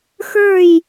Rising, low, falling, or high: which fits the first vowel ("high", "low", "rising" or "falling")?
falling